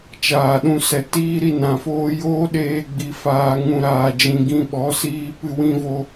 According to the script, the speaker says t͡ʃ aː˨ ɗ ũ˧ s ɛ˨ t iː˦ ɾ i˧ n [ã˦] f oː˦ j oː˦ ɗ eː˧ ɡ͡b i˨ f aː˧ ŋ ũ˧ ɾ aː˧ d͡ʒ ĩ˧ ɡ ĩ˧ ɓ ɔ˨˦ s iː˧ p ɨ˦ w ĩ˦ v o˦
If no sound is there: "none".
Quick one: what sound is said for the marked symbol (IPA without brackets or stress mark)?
ã˨